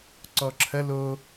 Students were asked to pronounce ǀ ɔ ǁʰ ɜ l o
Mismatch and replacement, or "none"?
none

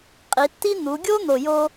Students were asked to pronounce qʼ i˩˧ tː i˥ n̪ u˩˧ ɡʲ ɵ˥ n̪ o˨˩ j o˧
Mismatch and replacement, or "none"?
ɵ˥ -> o˥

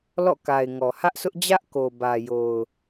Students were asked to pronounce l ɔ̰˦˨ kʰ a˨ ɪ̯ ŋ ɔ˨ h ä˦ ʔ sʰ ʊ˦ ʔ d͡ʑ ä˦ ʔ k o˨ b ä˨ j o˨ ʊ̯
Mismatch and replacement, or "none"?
kʰ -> k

